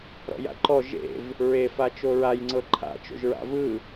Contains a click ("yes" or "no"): yes